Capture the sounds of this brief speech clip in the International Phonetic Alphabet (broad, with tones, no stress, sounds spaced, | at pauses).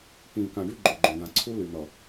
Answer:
k ĩː˨ k ã˨ ɖ y˦ ɡ͡ǃ o˨ ɡ͡ǃ õ˨ d̪ ã˨ ǀʰ u˦ l y˨ n̪ ʌ˨